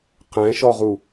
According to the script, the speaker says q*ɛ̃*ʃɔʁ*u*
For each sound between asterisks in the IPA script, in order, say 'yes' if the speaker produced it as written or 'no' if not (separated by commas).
yes, yes